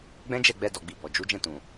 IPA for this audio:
ɡ͡b ɛ̃˦ d͡ʒ ɛ˦˨ ɡ͡b ɛ˧ d ɔ˨ ɡ͡b i˨ b ɔ˨ d͡ʒ u˨˦ d͡ʒ ɛ̃˦˨ t ũ˨

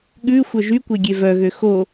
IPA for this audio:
ɠ ʉ xʷ œ ʒ y kʷ e ɡʲ e v œ ɣ ø x o

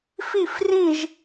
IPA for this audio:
f i˥˨ f r ĩ˥˨ ʒ

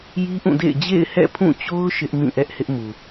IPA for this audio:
j i˦ ʔ ũ˦˨ d ḛ˦˨ ɪ̯ d͡ʑ ḛ˦˨ ɪ̯ h ɛ̰˦˨ pʰ ũ˦˨ t͡ɕ o˦ ʊ̯ ʃ ɪ˦ ʔ m ĩ˦˨ ʔ ɛ˦ ʔ h ɪ˦ ʔ m u˨

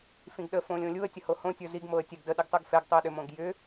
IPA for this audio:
f ĩ ɡ ɗ ə f õ lʲ õ lʲ u ə̯ tʲ ə h o h õ tʲ ə˞ z i ɡ m o ə̯ tʲ ɛ ɡ d ə ɗ i ɡ tˤ u ɡ f ɛ ɡ tˤ u ə̯ ɗ ʏ m õ ɡ j ʏ

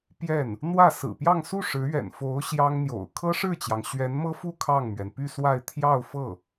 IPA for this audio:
p j ɛ˥˩ n | n̪ w ä˥˩ s ɹ̩˨˩ p j ɑ˥˧ ŋ s u˥˩ ʂ ɻ̩˧˥ ɥ ɛ̰˨˩ n f o˧˥ ʊ̯ ɕ j ɑ˥ ŋ n̪ j o̰˨˩ ʊ̯ kʰ ɤ˥ ʂ ɻ̩˥˩ t͡ɕ j ɑ˩ ŋ ɕ ɥ ɛ˧˥ n m ɤ˥ f u˥˧ kʰ ɑ˥˩ ŋ m ɥ ɛ˩ n p y˥˧ s w a˥˧ ɪ̯ t̪ʰ j ɑ˥˧ ʊ̯ f ɤ˥˩

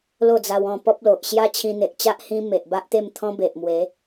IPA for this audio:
l o˥˧ d͡z a˧ w ɔ̃˥˧ p ɔ˦ p̚ l o˨ ʔ ɕ j a˦ t͡ɕʰ ĩ˧ n̪ e˨ ʔ t͡ɕ a˦ ʔ h ĩ˦ m e˨ ʔ b a˦ ʔ t̪ e˥˧ m t̪ʰ ɔ̃˦ b e˨ ʔ m w e˨˦

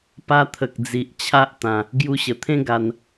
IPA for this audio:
p a˧ t̪ʰ ə˨ k̚ d͡z i˨ ʔ t͡ɕʰ a˦ ʔ t̪ ã˧ | ɡ j u˧ ɕ ə˨˩ t̪ʰ ẽ˦ ɡ a˧ n

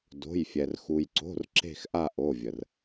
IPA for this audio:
d o̤˩˧˩ j fʲ ɛ˩ r x u˩ j ǀ o̤˩˧˩ r ǁ e̤˦˨ x ʔ a˦˨ ʔ o˩˧˩ vʲ ə˩ r

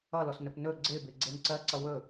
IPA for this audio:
ʌ l ɔ s n ɵ p n ɵ ɡ͡ǀ ɪː b ɪː ɡ͡ǀ e n ǀ ɜ ǀ ʌ w ɵ

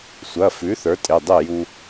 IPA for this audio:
sʷ ɐ˩˧˩ f ʉ˩˥ θ ə˞˩˥ tʼ e˩˧˩ dˤ e˥˩ j u˧

